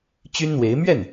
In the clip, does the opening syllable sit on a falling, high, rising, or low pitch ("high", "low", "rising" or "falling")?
high